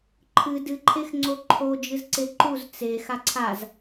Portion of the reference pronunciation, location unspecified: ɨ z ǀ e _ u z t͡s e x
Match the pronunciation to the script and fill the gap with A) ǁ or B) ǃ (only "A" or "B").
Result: B